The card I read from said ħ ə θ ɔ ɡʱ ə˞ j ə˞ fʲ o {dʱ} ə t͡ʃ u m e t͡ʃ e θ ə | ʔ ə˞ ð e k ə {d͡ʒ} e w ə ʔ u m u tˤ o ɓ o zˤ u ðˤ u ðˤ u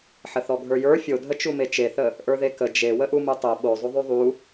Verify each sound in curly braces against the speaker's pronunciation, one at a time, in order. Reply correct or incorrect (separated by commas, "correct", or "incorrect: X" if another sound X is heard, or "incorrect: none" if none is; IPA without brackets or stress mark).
correct, correct